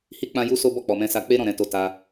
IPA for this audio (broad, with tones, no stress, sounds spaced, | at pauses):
h i˦ k͡p ã˦ j u˦ s o˦ b ɔ˦˨ k͡p ɔ˨ m ɛ̃˧ s a˧ k͡p e˦ ɾ ɔ̃˦˨ ɾ ɛ̃˨˦ t o˧ t a˧